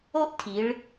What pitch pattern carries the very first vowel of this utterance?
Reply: high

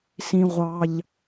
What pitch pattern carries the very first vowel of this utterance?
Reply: high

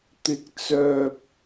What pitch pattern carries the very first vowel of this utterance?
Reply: rising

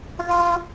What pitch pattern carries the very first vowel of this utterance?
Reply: high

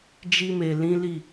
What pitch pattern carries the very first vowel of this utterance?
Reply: high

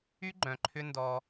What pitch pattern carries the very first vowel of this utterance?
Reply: high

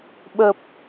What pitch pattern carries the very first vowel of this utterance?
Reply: low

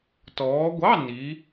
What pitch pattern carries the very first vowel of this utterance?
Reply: rising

